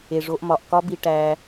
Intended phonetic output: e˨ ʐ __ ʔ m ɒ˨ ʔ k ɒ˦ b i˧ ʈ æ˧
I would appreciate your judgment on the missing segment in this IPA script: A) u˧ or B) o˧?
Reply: B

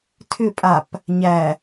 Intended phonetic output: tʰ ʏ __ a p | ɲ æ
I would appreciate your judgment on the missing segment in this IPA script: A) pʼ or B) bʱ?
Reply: A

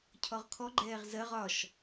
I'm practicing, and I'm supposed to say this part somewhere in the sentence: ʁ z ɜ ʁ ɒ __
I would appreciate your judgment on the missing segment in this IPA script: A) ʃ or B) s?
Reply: A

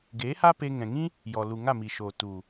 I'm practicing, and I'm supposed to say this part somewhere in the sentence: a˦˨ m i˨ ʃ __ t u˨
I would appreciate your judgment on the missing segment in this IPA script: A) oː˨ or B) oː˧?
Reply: A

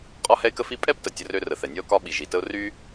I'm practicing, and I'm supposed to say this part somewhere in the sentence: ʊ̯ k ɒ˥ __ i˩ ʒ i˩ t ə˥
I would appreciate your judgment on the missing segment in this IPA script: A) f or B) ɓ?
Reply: B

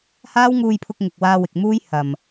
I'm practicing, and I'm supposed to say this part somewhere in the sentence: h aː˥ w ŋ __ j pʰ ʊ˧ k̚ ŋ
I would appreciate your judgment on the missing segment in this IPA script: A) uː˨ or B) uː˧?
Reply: B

